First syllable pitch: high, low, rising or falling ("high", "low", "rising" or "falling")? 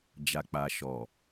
low